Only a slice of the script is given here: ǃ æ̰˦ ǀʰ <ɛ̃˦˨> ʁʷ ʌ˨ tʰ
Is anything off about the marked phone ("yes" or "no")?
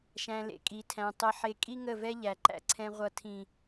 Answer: yes